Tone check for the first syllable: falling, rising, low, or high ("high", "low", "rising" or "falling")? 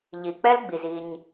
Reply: low